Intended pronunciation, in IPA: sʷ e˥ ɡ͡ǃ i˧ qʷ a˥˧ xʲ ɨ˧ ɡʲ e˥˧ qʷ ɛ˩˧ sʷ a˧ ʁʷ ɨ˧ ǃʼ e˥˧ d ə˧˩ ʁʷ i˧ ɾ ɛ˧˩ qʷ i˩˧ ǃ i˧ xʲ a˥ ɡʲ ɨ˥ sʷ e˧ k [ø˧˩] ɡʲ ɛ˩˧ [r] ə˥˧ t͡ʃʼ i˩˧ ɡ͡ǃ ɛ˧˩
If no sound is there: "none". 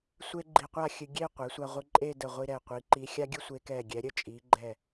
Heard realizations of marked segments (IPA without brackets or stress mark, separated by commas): ɛ˧˩, ɾʲ